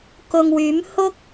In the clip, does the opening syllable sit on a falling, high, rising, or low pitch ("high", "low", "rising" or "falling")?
low